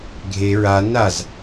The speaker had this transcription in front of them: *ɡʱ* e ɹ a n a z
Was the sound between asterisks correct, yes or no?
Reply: yes